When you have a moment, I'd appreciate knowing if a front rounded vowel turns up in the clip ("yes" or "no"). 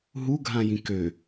yes